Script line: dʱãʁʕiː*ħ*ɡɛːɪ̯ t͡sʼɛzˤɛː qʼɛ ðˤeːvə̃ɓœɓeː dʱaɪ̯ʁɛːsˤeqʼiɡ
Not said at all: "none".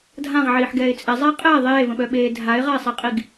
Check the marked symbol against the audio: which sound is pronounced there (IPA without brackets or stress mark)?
ħ